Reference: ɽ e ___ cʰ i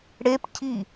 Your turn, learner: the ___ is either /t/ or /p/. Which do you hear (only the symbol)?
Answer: p